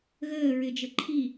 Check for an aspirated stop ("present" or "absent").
present